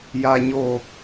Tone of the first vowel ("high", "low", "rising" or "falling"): low